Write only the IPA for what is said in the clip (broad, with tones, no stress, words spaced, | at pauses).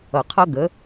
ʌ˨qʰʌ˦ɡə˨˦